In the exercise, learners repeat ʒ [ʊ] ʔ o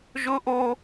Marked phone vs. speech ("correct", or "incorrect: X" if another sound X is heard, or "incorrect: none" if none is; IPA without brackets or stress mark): correct